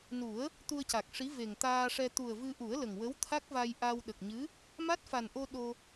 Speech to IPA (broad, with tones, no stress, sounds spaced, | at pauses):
n u˨˩˦ ə̯ | t̪ u˧ ə̯ c a˨˩ k̚ ʂ i˧˥ v e˨˩ ŋ t̪ aː˧ ʂ ɛ˧ t̪ u˨˩ ə̯ v ɨ˧ ʔ u˨˩˦ ə̯ l ə˨˩ ŋ w ə˧˥ w t̪ʰ a˦˥ k̚ v a˧ j ʔ a˧ w ɗ ə˨˩ k̚ ɲ ɨ˧˥ | m a˦˥ t̚ f a˨˩ n ʔ o˧ ɗ o˧